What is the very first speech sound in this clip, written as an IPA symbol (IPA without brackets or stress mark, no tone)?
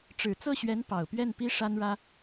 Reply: ʈ͡ʂ